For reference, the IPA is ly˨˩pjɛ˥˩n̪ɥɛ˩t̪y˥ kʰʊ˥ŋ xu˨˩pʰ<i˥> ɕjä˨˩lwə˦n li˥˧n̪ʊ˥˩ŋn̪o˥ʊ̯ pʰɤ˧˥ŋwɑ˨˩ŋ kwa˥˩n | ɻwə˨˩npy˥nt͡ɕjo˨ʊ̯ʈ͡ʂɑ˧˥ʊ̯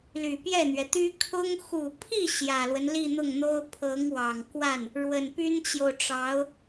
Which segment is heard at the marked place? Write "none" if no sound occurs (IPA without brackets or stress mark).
i˥˩